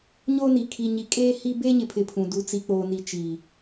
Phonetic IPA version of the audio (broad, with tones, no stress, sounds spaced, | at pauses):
ɲ o˦ n i˨ kʰ i˨ ɲ i˨ kʼ eː˦ h i˦ b eː˦ ɲ ɪ˨ pʰ ɪ˨ pʰ ũ˨ d u˨ t͡s i˨ k͡p oː˨ n i˨ t͡ʃ i˨